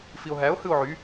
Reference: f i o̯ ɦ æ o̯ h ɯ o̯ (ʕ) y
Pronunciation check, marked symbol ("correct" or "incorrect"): correct